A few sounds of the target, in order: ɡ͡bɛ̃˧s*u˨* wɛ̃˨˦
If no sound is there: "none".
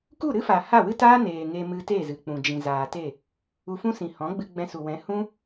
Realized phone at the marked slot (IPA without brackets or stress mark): u˨